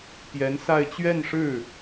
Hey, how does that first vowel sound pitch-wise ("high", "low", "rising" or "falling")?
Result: rising